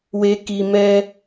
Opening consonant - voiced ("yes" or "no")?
yes